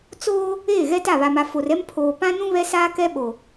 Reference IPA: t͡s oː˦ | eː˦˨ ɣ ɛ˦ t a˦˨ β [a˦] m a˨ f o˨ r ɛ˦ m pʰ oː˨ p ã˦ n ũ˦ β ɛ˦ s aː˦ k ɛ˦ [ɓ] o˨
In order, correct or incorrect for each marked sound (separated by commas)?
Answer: incorrect, correct